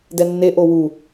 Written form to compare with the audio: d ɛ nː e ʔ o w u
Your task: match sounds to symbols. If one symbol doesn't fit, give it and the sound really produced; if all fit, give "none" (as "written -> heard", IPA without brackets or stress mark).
none